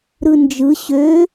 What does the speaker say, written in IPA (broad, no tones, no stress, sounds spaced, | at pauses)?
ɾ ɯ n d͡ʒ ɯ ɕ ø